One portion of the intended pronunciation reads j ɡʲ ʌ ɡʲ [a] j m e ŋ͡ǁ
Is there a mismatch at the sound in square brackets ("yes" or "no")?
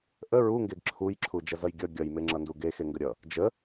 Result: yes